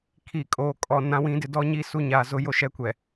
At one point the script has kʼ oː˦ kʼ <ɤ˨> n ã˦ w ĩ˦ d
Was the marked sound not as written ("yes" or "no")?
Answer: yes